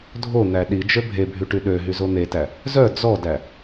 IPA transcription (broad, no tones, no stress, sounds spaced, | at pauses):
dʱ o n̪ æ ɗ i d͡ʒ ø bʱ e bʱ y ʈ y ɗ ø ɦ y z o n̪ e t æ | z œ d͡z ɔ d æ